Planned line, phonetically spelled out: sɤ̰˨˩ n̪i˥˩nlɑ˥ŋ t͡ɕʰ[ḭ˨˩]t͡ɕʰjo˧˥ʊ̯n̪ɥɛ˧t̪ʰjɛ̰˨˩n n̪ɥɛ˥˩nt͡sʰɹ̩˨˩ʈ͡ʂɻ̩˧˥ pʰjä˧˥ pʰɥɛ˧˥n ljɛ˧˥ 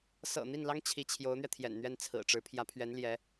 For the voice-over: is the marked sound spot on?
no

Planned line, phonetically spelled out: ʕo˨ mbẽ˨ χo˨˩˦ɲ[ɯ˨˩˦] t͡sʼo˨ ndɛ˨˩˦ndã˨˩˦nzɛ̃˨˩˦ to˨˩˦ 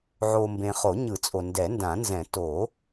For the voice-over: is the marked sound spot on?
yes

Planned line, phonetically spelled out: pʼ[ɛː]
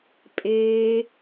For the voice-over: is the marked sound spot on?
no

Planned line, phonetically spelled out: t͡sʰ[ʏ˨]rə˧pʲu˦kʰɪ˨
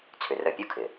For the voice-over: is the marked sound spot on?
yes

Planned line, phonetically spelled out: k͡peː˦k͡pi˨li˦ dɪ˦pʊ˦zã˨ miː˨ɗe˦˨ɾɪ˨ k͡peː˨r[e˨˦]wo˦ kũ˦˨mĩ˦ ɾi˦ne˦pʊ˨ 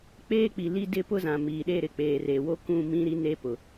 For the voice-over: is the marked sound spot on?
no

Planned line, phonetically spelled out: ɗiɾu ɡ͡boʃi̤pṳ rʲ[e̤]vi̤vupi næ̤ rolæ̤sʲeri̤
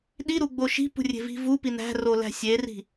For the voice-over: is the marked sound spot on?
yes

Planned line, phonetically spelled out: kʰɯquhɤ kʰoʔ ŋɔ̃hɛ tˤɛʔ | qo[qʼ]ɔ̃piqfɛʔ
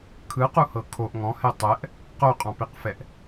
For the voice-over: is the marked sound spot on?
yes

